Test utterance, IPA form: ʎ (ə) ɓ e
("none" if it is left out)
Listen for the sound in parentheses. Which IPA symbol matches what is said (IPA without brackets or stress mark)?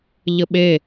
ə